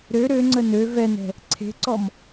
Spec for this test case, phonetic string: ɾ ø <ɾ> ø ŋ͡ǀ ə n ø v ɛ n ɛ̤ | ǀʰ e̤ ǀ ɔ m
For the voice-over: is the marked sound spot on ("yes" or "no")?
yes